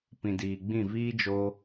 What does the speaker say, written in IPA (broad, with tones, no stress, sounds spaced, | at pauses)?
p ĩ˨ d iː˨ ɡ͡b ĩ˦˨ v iː˦ d͡ʒ o˧